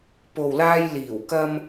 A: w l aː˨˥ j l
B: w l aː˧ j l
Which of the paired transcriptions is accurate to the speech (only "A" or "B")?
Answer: B